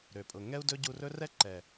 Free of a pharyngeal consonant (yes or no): yes